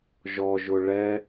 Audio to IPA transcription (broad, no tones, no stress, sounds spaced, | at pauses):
ʒ ɔ ʒ ʊ ɭ ɛ